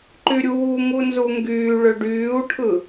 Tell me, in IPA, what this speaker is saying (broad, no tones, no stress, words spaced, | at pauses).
ǃyɾʲuː ŋunzuŋɡyː ɭøɖyːu̯ʈʰɯ